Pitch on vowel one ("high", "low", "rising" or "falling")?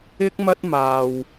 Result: high